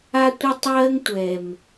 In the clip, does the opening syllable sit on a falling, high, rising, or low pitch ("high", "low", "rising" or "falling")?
high